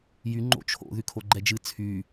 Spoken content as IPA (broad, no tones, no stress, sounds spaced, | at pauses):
j y ŋ͡ǃ o̰ t͡ʃʰ o̰ ð y kʰ o ɡ͡ǃ ɛ d͡ʒ ɨ t͡sʰ y